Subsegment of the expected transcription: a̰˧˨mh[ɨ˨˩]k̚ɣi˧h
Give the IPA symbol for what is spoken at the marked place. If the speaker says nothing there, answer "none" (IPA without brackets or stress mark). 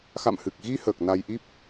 ɨ˨˩